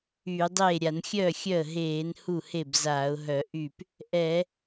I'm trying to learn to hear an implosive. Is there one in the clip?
no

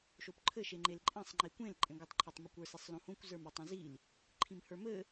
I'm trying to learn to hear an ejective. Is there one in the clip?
yes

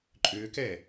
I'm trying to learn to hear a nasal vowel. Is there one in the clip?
no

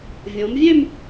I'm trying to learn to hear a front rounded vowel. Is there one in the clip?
yes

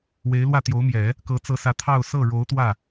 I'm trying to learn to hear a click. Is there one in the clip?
no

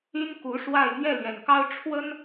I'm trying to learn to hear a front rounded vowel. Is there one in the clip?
yes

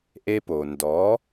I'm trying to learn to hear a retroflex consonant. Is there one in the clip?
no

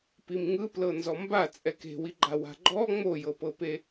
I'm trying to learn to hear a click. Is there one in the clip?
yes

